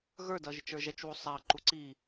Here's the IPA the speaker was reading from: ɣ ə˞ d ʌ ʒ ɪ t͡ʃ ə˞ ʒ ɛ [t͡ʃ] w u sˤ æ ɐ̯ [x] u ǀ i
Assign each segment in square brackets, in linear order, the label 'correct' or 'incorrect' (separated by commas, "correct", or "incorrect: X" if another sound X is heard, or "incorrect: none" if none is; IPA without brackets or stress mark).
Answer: correct, incorrect: ǃ